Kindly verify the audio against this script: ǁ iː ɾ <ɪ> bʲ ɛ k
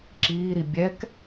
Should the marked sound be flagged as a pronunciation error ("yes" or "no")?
yes